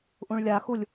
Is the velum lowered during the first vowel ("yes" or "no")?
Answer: yes